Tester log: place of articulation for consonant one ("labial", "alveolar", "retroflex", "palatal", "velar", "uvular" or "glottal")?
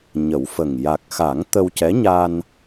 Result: palatal